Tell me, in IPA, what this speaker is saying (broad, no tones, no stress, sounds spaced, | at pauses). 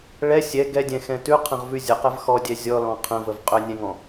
ɭ ɛ sʲ ɛ ɡ ɛ dʲ ɛ̃ x ɛ̃ t ʉ qʰ ə̃ ʁ v ʉ zʲ ə q ɛ v x ɔ dʲ ɛ zʲ ɔ l ɔ̃ qʰ ə̃ v ə v qʼ ɵ nʲ ɛ̃ ŋ ɔ̃